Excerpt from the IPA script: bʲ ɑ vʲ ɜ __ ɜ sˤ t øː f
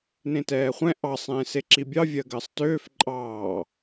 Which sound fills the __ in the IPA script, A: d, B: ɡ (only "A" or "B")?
B